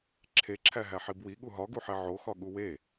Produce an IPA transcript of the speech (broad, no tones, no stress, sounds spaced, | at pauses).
ǁʰ e ǁʰ æ ɦ æ ħ i b w i ɠ u ɦ ɒ ɡ u ħ e ʕ o x ɒ ɠ u w e